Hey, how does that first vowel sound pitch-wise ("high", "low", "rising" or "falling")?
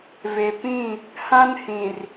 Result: low